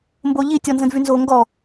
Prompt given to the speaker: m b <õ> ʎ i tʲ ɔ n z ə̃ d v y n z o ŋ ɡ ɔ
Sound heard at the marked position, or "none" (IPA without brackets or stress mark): o